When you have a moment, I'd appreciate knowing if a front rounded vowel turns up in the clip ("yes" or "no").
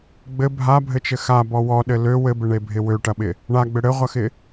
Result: yes